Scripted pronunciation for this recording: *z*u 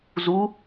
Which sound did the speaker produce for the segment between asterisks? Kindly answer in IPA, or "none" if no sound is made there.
z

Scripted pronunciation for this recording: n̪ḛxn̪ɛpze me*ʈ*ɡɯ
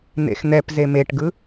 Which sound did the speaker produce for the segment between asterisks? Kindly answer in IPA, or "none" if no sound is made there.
ʈ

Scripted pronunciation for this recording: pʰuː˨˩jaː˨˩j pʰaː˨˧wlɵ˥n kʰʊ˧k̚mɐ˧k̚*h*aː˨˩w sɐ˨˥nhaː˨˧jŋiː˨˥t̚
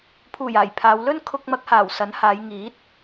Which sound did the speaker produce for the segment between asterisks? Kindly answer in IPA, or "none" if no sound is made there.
h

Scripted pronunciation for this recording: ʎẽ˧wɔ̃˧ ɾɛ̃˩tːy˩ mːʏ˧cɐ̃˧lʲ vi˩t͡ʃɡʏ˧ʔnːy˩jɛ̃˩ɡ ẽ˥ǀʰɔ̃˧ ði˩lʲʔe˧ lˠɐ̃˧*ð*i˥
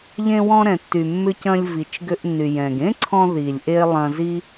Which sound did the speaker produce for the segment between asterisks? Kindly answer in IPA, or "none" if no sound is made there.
z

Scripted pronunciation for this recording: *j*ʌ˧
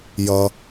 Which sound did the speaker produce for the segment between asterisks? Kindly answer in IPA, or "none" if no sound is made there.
j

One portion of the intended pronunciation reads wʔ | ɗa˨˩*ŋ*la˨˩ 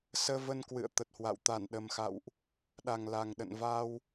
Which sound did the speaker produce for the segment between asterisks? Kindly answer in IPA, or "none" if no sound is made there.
ŋ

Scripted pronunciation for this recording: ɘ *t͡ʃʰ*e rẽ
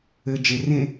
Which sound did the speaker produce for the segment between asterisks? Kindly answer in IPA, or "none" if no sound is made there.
d͡ʒ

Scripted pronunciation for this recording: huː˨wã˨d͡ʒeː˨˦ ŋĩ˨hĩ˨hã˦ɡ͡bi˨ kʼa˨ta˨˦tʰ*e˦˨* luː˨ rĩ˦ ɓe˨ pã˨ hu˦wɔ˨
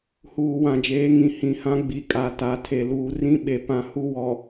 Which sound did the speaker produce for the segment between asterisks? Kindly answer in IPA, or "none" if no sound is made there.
e˨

